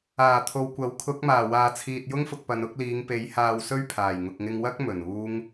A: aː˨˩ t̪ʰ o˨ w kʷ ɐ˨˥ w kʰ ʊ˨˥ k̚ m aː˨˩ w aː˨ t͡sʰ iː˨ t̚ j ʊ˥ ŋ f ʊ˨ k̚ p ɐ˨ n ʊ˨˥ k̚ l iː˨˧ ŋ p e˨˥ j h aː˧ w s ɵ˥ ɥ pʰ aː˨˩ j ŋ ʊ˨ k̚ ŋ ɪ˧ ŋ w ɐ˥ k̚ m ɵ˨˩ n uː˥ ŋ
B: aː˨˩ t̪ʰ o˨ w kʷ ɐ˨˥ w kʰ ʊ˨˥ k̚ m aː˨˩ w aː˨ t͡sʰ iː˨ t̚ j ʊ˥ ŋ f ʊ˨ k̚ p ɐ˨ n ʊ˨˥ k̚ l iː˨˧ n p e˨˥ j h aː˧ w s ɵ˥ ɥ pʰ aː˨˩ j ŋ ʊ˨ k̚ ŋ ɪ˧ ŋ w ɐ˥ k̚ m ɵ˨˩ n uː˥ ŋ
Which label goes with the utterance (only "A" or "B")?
A